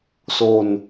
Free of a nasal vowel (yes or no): yes